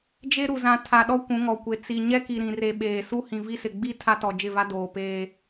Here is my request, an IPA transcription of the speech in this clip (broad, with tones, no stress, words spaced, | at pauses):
d͡ʒe˦ɾu˨zã˨ tʰa˨ɗɔ˦ kʷũ˨˦ŋɔ˨kʷe˨ t͡si˨ ɲɛ˦ki˨ɾĩ˨re˨ ɓeː˨ su˦hĩ˨vi˦sɪ˨ ɡ͡bi˦ tʰa˦tɔ˨d͡ʒɪ˦˨va˦ doː˨peː˦